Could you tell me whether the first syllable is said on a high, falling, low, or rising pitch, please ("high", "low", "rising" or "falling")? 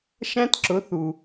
high